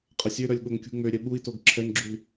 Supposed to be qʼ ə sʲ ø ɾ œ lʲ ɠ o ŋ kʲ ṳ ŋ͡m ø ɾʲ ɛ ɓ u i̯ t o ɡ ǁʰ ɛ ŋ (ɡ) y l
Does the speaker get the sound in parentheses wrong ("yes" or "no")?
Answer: yes